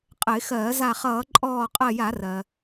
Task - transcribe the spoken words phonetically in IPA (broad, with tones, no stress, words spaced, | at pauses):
qʼə˧˩˧ɪ̯xɜː˧˩˧ za˧˩χʌː˧˩˧ǃʼɔː˧˩ qʼɜ˧˩ja˧˩˧rɜ˩